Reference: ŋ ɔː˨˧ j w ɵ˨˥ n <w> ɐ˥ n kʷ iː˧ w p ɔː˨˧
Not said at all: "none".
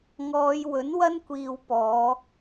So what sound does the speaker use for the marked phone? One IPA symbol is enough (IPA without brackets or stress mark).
w